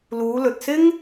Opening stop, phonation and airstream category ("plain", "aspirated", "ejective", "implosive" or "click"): plain